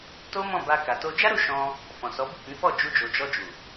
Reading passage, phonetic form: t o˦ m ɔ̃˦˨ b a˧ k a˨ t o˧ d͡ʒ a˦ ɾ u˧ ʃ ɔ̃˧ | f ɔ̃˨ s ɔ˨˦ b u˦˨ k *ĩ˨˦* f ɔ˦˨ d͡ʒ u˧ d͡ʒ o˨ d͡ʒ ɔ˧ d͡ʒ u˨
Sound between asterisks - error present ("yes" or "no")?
no